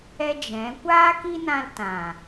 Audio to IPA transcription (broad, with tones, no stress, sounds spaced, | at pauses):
ɛ˦ d͡ʒ ɛ̃˨˦ kʷ aː˦ k i˦ n ã˧ l t ã˨